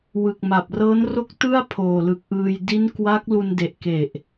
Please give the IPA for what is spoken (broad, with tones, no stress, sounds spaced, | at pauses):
w ɯ˨˩ k̚ m a˨˩ p̚ r ɤː˦˥ n r o˥˩ k̚ t ɯ˥˩ a̯ pʰ oː˨˩ l ɯ˨˩ k̚ ʔ ɯː˧ j d i˦˥ n k w a˦˥ k̚ l u˧ n d e˨˩ ʔ k e˨˩ ʔ